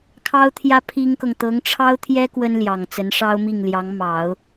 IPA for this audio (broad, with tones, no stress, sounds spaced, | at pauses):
kʰ ɑ˥ ʊ̯ t̪ʰ j ä˥ pʰ i˥ ŋ k ɤ˨ ŋ t̪ ɤ˧˥ ŋ ʈ͡ʂʰ ɑ˥ ʊ̯ t̪ʰ j ɛ˥ k w ə˥ n l j ɑ˨˩ ŋ t͡s ə˧˥ n ʂ ɑ˥ ʊ̯ m i˥˩ ŋ l j ɑ˧˥ ŋ m ɑ˨˩˦ ʊ̯